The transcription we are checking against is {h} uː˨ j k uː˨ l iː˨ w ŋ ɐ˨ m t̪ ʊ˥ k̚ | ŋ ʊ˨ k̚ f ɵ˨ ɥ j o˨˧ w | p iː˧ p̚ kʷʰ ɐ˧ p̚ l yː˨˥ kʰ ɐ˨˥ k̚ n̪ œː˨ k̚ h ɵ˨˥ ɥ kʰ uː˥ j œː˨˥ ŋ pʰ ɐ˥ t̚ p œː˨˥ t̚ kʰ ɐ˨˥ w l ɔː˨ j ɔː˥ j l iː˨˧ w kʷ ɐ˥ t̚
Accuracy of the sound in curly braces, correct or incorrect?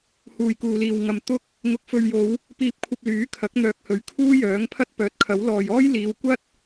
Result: correct